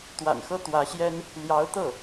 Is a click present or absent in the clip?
absent